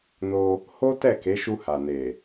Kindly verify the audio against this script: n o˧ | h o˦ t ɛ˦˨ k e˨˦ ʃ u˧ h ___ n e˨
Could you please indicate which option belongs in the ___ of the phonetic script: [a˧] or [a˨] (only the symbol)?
a˨